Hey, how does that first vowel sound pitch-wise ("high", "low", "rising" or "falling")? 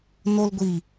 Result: high